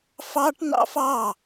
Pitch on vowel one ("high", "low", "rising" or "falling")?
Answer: high